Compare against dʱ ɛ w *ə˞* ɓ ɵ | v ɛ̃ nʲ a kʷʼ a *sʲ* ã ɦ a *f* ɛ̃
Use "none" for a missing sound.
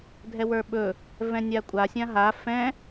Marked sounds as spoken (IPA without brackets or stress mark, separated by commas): ə˞, sʲ, f